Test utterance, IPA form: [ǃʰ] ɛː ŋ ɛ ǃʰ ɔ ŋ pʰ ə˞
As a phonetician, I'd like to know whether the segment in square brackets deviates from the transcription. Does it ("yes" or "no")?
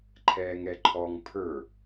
no